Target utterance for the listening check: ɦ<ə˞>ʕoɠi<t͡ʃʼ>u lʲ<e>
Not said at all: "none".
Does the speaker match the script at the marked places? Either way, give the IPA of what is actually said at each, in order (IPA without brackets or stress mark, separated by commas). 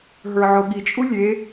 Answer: ə˞, t͡ʃʼ, e